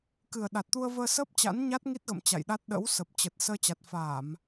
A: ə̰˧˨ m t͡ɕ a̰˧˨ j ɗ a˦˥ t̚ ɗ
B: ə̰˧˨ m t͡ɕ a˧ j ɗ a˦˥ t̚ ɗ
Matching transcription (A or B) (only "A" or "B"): A